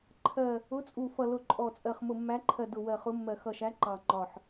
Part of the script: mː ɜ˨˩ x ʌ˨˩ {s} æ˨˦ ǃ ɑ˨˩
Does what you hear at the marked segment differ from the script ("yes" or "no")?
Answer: yes